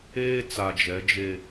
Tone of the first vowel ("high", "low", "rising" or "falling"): high